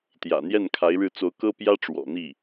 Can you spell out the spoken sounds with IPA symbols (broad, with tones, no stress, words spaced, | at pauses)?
t̪jä̰˨˩ n̪jɛ˥˩nkʰa˧˥ɪ̯ɻɻ̩˥˩ t͡so˧˥ʊ̯kɤ˥pjä˥ ʈ͡ʂwɔ̰˨˩n̪i˥˩